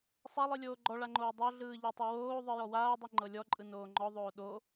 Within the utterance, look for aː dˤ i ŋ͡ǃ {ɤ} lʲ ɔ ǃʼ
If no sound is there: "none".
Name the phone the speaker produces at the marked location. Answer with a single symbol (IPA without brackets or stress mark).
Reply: ɤ